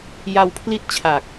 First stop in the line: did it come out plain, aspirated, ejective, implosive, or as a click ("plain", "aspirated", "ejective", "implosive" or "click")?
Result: aspirated